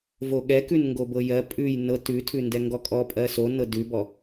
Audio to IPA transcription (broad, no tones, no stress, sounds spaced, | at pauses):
v o ɠ ɛ k ʉ n ŋ ɡ o b ɤ j ɜ pʼ ʉ j n ɤ t ʉ tʰ ʉ n d ɛ ŋ ɡ ɔ kʼ ɔ pʼ ɜ s o n ɤ d ʉ b ɔ